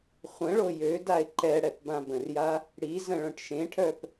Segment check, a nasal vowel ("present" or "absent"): present